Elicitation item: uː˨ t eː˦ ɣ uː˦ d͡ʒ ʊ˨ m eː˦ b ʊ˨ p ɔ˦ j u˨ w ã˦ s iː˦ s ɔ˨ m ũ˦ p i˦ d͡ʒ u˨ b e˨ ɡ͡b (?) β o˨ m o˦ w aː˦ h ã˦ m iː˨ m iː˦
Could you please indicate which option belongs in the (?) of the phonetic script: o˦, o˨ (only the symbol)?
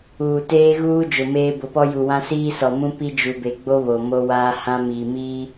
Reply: o˦